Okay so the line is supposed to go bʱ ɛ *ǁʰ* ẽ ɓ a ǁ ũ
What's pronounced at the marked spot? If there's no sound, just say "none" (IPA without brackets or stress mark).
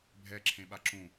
ǁʰ